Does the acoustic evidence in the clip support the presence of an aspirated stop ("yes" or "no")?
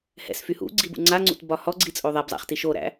no